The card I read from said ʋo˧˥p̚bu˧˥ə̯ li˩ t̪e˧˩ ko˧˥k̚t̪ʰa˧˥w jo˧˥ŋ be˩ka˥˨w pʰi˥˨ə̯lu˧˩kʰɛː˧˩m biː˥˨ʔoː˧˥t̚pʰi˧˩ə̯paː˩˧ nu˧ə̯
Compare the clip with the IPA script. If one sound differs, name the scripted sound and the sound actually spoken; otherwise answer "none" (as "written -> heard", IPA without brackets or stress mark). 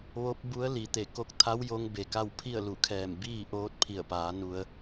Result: none